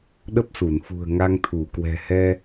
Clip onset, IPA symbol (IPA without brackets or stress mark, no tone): ɗ